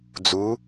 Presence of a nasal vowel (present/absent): absent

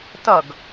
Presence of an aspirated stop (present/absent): absent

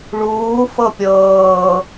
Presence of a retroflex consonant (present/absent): present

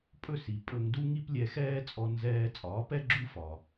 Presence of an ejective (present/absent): present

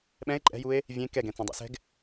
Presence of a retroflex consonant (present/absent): absent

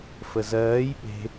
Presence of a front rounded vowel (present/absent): absent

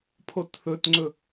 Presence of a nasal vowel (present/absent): absent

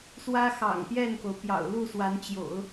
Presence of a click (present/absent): absent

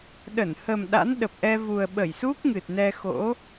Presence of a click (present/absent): absent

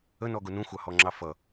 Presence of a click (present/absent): present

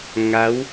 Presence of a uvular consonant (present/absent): absent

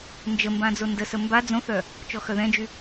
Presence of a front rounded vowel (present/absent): present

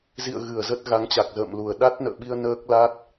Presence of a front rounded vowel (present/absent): absent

